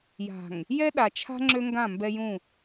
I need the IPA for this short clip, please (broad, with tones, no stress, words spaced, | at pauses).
ja̤˨ŋ | jɛ˦ɗa˨t͡ʃʰa̤˦ ŋ͡ǁø˦ŋɡã˦˨ mbɛ˦jũ˦˨